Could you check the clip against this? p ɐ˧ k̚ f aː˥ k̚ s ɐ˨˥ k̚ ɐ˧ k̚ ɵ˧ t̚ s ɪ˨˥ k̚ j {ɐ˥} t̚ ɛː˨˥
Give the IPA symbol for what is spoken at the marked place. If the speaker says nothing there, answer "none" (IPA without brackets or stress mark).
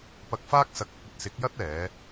ɐ˥